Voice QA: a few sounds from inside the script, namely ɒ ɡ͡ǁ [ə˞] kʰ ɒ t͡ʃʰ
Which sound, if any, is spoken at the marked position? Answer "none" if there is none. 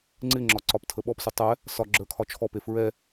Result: ə˞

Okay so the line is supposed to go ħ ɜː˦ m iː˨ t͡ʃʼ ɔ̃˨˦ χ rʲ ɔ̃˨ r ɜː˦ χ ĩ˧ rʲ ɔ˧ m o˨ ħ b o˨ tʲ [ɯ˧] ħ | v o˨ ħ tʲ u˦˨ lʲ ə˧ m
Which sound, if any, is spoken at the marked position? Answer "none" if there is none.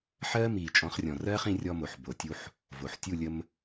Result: u˧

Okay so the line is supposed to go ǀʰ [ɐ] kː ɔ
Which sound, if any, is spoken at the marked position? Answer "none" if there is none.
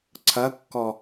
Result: ɐ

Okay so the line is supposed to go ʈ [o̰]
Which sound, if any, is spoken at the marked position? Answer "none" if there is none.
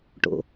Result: o̰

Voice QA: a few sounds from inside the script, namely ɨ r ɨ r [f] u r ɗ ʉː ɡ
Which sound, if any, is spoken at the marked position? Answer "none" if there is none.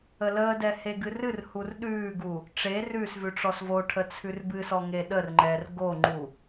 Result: h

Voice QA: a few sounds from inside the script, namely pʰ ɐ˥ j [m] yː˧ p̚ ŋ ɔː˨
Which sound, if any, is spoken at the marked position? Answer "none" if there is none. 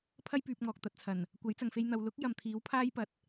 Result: p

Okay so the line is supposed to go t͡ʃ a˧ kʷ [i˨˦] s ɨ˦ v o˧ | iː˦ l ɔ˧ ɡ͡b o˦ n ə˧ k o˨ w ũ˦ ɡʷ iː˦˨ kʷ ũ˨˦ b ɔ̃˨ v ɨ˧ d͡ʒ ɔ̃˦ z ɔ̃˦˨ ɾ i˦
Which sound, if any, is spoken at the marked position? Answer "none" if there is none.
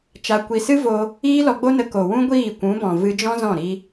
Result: i˧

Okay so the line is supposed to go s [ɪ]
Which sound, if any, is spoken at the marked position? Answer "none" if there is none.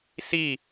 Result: i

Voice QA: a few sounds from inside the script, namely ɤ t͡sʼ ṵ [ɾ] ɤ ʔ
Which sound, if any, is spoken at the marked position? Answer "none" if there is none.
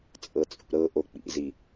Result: ɾ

